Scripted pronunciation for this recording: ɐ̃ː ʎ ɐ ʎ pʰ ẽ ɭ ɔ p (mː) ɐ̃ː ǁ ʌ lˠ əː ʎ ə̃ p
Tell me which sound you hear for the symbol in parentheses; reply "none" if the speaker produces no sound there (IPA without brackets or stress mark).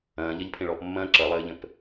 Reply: mː